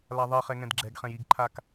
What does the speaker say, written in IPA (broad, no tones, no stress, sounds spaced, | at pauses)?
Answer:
l a ðˤ e χ ɛ ŋ ɛ̃ d ɡ͡ǁ ɛ ɡ χ ɛ̃ j i ɡ ǃʰ a k